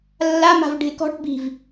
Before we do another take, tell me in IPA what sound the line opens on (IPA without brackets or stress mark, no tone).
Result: lː